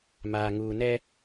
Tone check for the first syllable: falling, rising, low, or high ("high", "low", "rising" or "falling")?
low